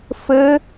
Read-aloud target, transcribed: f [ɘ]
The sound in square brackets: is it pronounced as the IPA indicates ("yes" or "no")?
yes